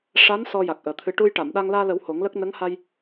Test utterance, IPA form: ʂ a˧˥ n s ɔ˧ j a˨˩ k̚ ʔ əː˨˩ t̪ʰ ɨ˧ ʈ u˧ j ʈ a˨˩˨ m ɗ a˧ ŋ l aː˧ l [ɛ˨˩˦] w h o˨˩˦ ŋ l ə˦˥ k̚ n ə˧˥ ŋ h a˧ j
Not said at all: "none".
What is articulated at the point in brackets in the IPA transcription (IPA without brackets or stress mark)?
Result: ə˨˩˦